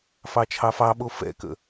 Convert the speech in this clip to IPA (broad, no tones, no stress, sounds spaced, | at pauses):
f ɑ t͡ʃʰ ɑ f ɑ ɓ o f ɛ̰ k ə̰